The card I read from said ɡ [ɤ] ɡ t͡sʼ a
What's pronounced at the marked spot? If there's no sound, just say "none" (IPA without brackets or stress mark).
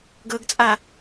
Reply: ɤ